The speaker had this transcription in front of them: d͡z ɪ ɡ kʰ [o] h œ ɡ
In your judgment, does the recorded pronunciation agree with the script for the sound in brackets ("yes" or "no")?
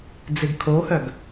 yes